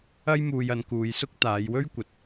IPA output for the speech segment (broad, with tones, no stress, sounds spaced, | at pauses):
ɐ˥ j m uː˧ j ɐ˨˧ n k uː˨˧ j s ʊ˥ k̚ t̪ aː˨˧ j w ɵ˥ ɥ kʷ ɐ˨ t̚